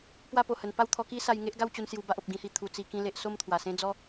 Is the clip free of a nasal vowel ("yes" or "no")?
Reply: no